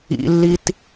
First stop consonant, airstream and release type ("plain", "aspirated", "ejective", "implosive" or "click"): plain